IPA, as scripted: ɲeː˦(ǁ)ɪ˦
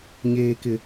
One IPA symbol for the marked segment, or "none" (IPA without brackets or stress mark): k